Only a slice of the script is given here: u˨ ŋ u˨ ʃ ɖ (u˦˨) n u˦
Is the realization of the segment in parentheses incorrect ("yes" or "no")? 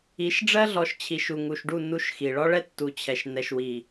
no